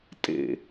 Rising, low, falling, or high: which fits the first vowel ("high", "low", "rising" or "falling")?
falling